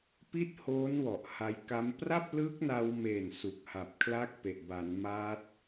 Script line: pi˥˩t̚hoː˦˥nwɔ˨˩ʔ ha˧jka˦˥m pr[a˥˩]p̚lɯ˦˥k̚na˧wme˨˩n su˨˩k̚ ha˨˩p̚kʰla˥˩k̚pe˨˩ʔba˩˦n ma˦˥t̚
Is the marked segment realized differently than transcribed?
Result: no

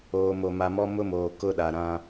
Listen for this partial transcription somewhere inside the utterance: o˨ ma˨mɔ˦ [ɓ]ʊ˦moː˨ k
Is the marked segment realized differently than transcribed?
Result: yes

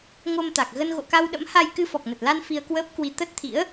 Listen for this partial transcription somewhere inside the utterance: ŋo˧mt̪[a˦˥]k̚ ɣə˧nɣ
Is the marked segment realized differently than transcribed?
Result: yes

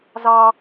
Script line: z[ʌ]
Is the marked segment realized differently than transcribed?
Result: yes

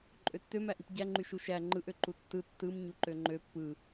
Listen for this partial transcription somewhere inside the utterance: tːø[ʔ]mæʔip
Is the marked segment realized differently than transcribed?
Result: yes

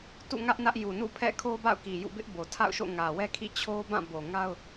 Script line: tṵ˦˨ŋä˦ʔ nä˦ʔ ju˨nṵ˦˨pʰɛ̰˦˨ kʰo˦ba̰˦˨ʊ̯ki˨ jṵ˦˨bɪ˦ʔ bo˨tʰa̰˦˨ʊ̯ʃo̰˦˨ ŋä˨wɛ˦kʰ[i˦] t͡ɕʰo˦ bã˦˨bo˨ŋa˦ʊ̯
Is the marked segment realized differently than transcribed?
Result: yes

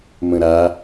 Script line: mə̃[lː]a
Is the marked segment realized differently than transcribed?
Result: yes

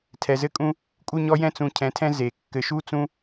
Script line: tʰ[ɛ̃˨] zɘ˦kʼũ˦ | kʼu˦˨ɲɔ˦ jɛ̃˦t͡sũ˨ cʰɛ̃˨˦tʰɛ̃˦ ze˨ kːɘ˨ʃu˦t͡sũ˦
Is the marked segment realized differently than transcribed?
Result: yes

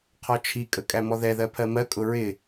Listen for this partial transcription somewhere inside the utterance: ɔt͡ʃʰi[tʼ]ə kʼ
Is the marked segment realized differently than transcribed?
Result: yes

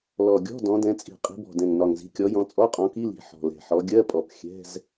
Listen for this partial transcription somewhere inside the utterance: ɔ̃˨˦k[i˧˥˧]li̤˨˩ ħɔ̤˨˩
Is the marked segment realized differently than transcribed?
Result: no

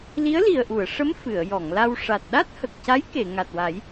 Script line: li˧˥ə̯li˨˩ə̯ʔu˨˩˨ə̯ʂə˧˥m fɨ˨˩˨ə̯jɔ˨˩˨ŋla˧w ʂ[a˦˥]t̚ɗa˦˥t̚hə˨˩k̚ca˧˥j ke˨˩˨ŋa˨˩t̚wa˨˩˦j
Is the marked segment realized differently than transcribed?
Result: yes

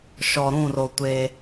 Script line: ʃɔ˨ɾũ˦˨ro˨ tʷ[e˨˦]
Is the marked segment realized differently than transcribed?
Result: yes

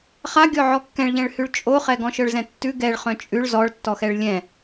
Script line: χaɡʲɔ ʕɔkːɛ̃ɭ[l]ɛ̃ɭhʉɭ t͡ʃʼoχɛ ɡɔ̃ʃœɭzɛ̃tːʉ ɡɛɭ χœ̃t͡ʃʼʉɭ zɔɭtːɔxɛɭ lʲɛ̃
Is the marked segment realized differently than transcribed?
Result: yes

